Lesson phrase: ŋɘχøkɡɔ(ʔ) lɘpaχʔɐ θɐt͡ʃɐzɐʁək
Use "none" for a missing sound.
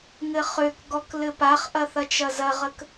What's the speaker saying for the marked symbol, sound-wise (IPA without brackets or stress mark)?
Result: k